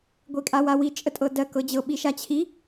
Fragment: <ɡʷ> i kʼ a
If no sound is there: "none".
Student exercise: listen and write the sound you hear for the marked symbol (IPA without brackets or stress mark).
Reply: ɡʷ